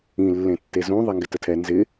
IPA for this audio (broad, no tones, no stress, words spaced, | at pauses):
ĩ lːẽtːezũ ðˤɛŋɡɪtətʰɛ nzɪ